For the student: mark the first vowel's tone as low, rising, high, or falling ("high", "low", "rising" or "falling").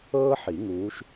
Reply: high